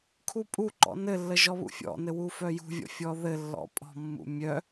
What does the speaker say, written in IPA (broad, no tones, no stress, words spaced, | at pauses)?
kʰupʼuǃɔ̰ nɘlːə ʒɔβṵfʲɔ̰nɘ wufœjṳvʲɔ̰ fʲɔðɘlːɔ̰ pʼɔ̤mːṵ mʲœ